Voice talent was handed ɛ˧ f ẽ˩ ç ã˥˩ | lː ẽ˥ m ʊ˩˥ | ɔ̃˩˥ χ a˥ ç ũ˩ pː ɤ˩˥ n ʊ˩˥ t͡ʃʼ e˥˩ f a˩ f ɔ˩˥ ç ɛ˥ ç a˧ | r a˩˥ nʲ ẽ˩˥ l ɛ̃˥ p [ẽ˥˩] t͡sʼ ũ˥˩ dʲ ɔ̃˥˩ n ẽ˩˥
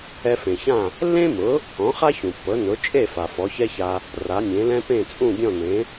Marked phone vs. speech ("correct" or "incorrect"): correct